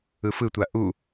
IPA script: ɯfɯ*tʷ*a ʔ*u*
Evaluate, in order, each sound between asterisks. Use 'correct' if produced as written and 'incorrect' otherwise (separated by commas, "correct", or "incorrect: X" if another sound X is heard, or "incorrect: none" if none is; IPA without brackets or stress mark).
correct, correct